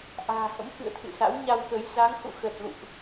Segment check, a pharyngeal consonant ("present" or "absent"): absent